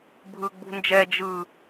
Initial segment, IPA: bʱ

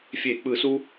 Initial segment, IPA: fʲ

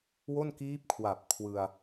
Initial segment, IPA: w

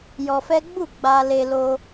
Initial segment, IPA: j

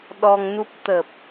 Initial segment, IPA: ɗ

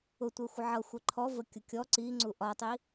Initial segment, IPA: ʊ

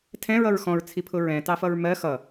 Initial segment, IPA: tʰ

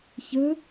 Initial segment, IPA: ç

